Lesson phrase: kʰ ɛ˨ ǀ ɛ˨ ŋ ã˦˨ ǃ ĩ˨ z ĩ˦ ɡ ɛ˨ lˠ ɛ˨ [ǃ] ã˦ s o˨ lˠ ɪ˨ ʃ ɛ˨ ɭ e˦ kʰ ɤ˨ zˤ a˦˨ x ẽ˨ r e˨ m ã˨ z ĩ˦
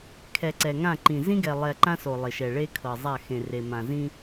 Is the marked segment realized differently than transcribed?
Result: no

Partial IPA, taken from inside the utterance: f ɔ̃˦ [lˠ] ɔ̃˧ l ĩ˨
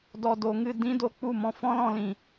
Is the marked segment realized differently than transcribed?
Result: yes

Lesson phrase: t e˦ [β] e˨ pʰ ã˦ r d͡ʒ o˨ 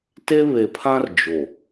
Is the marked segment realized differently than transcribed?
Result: no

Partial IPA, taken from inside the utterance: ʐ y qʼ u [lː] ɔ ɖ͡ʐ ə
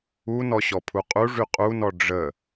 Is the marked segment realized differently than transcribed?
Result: yes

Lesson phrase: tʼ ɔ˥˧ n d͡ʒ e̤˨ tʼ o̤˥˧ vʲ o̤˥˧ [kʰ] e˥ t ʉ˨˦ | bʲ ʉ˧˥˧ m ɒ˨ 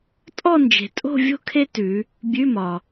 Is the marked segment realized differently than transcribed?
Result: no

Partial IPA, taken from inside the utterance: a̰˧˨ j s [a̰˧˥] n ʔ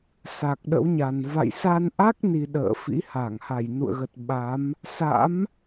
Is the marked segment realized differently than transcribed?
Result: yes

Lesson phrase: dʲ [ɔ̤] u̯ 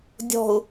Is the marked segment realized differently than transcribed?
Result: no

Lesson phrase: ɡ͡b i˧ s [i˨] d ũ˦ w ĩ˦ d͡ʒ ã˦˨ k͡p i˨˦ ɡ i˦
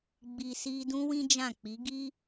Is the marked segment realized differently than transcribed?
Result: yes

